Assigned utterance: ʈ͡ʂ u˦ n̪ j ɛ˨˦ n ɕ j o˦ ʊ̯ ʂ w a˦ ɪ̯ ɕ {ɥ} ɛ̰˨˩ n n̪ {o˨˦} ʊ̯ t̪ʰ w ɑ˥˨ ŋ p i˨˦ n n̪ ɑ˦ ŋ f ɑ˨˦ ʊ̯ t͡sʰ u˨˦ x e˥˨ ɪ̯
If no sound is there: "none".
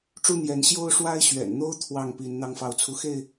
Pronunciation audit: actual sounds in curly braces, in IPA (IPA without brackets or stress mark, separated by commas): ɥ, o˦